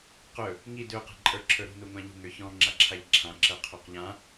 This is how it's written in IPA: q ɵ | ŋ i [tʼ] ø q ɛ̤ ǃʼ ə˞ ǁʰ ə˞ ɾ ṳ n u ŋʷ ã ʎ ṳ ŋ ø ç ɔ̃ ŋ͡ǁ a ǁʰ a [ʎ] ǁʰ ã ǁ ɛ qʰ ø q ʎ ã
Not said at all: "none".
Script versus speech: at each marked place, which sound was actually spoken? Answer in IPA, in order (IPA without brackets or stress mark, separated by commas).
d, ʎ